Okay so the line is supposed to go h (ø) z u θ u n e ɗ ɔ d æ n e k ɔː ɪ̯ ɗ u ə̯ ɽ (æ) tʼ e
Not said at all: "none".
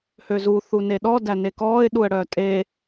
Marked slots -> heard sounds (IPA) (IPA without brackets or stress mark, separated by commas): ø, œ